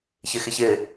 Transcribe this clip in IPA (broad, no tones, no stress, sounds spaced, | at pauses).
ç ɪ x ɪ ç ɪ